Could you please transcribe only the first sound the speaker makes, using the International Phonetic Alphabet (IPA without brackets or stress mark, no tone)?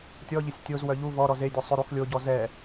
tʲ